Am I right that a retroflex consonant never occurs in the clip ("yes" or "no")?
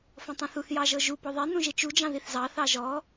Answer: yes